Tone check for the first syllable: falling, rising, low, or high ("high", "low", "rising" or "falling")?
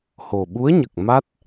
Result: low